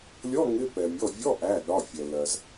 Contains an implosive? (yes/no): yes